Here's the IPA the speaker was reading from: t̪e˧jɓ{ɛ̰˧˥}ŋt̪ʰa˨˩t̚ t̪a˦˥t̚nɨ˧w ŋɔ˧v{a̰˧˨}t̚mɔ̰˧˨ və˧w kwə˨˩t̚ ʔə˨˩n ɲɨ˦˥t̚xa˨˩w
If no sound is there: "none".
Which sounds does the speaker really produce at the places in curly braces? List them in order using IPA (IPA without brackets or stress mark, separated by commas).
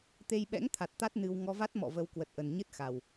ɛ̰˧˥, a˦˥